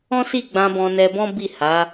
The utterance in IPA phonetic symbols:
ɔ̃˦si˦˨ɡ͡bã˧ bɔ̃˧nɛ˧bɔ̃˦ bi˦˨ha˨˦

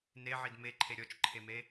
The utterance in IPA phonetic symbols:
neʕid meǃʰe ɾʲɔt͡ʃǃʰeme

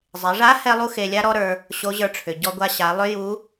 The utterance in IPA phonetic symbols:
zˤe˩˧ʐa˧˥ hɛ˥lˠu˥xe˧lʲa˥ ɾɔ˥ɾə˞˧ | ɕo˧˥ʑə˞˧ʈ͡ʂʰʏ˩ ɟɔ˧ɡʷa˧ɕa˩˧ lˠʏ˥ju˧˥

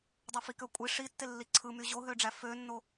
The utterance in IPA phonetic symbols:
dˤøfikøkʷʼi ʂitːelːi ǀʰɯ myʑoɦøɖ͡ʐæ fønːo

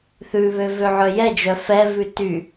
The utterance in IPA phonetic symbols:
θʉβø vøʕœjɛd͡ʒœ fɛvʉ ty

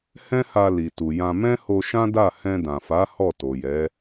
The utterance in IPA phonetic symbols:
hɛ̃˦ha˧ li˨ tu˨jã˧ mɛ̃˦ho˧ʃã˦da˦˨ hɛ̃˧ dã˨fa˨˦ hɔ˦˨to˨jɛ˨˦

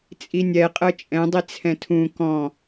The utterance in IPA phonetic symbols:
t͡sʼinʲɛ qʼɤt͡ʃʼɛ̃dˤi t͡sʰɛ̃tʰũ kɔ̃

